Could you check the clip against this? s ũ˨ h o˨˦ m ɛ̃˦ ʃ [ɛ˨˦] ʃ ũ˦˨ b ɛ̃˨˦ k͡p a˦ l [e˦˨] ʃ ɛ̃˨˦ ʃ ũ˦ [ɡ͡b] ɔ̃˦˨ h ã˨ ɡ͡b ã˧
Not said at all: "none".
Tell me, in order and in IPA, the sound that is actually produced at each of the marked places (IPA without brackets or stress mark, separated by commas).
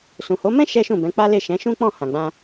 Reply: ɛ˦, e˦˨, k͡p